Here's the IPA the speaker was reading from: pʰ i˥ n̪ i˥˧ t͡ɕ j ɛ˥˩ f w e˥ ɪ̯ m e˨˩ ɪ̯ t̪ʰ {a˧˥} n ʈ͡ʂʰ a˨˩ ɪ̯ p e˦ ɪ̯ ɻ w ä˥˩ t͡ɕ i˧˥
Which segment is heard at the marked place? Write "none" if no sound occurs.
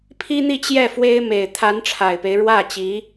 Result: a˧˥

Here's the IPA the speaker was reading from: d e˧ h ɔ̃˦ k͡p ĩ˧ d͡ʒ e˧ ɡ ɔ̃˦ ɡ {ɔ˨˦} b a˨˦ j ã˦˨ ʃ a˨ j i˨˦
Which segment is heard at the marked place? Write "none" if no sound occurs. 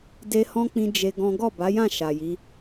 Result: ɔ˦˨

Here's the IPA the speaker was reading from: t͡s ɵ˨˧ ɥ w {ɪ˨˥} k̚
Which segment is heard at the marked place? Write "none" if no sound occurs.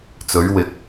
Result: ɪ˨˥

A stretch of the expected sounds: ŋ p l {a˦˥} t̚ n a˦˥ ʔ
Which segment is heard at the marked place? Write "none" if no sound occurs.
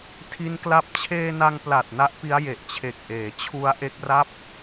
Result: a˨˩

